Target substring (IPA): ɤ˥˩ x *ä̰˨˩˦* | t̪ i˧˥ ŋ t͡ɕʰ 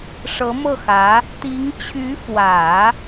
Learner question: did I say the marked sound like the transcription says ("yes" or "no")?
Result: no